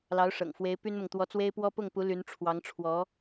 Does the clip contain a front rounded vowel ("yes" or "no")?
yes